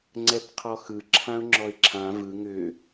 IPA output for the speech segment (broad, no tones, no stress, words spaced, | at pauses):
ŋ͡ǀɛpqʰɔxɯ ǁʰãʊ̯ŋ͡ǁɔɪ̯ǁʰã vɯ ŋʏ